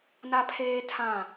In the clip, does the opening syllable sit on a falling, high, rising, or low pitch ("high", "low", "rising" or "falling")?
high